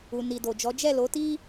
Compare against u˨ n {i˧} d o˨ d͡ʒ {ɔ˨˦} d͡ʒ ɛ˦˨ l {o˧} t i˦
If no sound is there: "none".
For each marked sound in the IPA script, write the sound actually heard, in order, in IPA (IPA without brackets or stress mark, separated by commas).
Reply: i˨, ɔ˨˦, o˨˦